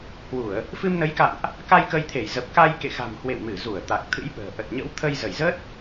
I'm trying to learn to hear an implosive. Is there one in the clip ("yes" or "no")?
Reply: yes